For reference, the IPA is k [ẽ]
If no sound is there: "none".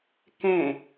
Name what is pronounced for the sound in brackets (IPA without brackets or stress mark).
ẽ